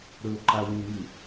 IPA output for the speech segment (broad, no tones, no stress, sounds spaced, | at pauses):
ɾ ɵ ǃ a w ũ ŋ ɨ